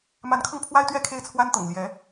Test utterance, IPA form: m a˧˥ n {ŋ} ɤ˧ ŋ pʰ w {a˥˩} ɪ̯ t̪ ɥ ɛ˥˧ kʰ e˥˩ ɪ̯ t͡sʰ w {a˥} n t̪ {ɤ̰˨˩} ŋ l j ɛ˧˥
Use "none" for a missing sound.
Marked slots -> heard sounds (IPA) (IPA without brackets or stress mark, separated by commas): kʰ, a˥, a˥, ɤ̰˨˩